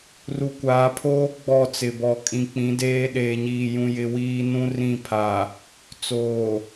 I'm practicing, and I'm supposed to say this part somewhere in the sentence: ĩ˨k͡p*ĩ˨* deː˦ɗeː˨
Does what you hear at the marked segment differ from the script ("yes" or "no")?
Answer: yes